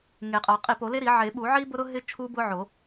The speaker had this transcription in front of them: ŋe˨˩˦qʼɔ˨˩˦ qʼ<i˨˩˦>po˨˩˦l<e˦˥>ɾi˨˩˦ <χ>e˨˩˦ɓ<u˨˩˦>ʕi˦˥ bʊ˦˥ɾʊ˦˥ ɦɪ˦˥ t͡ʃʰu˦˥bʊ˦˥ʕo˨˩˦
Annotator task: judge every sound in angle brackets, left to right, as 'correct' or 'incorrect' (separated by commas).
correct, correct, incorrect, correct